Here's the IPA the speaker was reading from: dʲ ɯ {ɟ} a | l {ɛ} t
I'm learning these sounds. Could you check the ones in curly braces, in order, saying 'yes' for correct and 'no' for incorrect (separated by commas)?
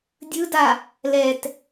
no, yes